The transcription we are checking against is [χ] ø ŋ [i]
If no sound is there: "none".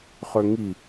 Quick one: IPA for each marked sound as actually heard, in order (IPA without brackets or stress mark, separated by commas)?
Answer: χ, i